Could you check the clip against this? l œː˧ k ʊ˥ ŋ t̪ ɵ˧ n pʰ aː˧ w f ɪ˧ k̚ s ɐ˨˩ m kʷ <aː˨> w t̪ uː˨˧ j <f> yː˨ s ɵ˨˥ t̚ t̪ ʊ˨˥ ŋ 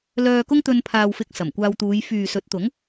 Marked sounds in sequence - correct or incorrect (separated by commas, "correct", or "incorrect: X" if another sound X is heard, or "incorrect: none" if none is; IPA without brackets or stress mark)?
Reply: incorrect: aː˧, correct